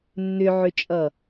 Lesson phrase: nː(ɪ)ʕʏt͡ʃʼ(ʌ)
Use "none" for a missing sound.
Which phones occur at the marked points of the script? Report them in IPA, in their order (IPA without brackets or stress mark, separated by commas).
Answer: ʏ, ʌ